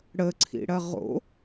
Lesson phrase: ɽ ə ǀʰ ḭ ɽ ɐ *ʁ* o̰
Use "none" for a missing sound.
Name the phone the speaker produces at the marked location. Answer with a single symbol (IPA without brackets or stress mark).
ʁ